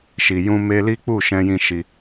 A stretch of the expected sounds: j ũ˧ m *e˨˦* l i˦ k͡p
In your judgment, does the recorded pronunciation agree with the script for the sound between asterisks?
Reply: no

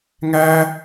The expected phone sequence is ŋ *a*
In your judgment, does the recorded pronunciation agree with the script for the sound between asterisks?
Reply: no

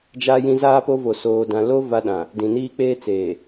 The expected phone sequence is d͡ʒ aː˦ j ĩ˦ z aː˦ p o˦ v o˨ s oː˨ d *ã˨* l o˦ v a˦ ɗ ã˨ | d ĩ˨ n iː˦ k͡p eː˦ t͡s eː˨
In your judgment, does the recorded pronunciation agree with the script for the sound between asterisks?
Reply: yes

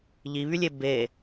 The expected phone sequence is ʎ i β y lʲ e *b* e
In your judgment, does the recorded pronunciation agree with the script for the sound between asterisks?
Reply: yes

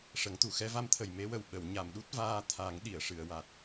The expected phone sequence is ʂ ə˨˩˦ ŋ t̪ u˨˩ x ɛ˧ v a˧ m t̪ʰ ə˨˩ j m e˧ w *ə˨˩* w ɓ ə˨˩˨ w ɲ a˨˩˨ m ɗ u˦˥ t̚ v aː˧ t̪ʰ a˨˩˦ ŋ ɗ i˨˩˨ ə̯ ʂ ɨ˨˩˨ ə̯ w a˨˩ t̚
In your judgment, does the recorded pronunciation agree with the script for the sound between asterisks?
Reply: yes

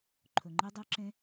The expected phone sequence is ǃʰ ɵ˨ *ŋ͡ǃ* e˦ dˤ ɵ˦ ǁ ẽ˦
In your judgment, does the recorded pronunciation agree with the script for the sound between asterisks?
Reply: yes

